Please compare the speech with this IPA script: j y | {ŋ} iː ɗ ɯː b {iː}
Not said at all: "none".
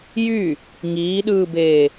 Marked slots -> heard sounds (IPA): ŋ, eː

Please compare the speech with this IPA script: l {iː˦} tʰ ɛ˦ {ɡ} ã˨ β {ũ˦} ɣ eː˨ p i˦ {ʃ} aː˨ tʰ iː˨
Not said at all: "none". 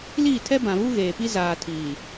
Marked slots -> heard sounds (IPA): iː˦˨, b, u˦, z

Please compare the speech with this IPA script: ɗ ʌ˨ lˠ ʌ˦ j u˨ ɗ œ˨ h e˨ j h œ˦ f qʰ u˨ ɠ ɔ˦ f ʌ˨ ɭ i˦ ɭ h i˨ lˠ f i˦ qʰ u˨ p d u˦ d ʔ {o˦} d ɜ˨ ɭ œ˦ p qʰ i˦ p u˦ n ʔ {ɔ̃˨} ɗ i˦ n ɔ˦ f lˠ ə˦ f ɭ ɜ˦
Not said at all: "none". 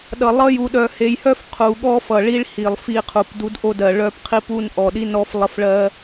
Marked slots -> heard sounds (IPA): o˦, ɔ˨

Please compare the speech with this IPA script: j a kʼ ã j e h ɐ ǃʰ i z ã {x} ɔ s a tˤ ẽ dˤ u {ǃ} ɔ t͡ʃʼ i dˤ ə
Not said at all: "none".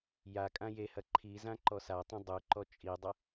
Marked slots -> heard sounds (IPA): ǃ, ǃ

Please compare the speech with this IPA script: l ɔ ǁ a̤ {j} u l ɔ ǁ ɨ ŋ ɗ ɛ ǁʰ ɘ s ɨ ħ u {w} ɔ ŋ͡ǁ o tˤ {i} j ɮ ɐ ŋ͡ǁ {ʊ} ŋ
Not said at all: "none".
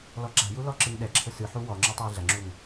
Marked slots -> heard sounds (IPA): j, w, ɨ, u

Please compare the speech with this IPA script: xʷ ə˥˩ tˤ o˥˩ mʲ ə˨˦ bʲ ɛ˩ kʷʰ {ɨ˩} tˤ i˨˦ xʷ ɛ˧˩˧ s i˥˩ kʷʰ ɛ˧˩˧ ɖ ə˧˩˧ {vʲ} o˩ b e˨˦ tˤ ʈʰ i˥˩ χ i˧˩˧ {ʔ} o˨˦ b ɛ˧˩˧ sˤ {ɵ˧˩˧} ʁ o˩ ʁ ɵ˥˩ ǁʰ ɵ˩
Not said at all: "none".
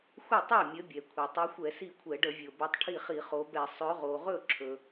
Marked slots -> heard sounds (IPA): e˩, vʲ, χ, ɵ˨˦

